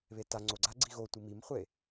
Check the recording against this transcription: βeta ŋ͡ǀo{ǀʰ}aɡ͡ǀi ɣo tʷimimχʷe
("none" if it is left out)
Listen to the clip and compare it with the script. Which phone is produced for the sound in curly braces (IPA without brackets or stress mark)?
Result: ɡ͡ǀ